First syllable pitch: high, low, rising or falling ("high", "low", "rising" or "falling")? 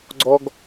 high